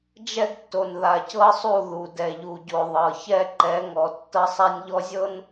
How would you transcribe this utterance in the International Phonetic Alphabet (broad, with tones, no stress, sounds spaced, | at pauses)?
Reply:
d͡ʒ ɛ˦ ɡ tː o˨ n ð a˨ c ɤ˦ sˤ u˦˨ ð u˨ d ɛ˨ ʎ u˨ ɟ o˨ ðˤ ɤ˨ ç ɛ˦ ǃ ɛ˨˦ ŋ ɔ˨ tː ɤ˦ sˤ a˦ nʲ ʎ ɔ˦ zʲ ɤ˦ n